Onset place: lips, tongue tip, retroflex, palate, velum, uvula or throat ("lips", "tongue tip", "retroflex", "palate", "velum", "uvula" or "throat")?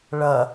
retroflex